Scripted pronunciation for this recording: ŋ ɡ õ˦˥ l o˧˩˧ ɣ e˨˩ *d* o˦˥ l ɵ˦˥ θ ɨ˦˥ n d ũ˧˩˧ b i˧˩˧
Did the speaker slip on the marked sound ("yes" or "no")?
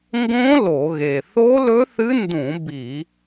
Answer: yes